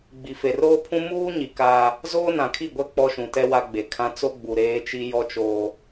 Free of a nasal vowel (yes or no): no